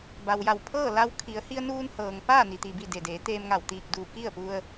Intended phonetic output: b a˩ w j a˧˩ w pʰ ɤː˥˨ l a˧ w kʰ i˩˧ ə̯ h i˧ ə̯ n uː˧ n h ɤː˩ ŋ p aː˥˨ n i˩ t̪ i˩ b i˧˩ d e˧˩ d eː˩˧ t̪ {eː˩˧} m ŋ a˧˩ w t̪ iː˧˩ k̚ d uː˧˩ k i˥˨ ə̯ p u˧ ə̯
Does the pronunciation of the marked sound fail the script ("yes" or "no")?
yes